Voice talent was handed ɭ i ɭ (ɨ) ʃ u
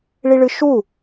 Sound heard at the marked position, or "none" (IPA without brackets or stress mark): ɨ